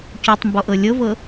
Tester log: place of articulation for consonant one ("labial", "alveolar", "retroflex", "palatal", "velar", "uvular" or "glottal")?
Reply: palatal